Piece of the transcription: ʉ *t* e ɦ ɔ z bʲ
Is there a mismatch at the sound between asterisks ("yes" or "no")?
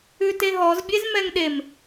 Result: no